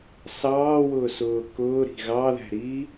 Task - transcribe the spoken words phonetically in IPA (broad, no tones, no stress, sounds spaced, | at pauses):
s ɑː w ʊː s ʊː k ʊː ɾ i̤ ɣ ɑ ð æ̤ ɾ iː